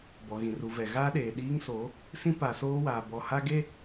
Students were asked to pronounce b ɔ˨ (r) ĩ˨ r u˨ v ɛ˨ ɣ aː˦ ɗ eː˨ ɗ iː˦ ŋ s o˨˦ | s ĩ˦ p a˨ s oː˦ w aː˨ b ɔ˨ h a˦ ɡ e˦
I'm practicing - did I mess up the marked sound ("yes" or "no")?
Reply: yes